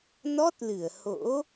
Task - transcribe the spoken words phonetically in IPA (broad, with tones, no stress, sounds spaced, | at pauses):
n ɔ˦˥ t̚ l ɨ˧˩ ə̯ h o̰˧˥